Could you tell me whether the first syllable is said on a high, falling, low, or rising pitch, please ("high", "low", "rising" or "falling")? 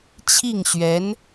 falling